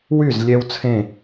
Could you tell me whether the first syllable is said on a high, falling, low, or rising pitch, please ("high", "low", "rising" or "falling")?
falling